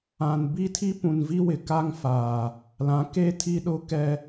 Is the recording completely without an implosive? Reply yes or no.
no